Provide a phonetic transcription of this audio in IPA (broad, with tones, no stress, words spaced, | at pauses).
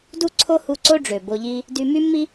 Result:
du˥ǀʰo˥ hu˧ ǀo˥ ɖ͡ʐø˩bo˧ʎi˥ | dy˧my˥mːi˥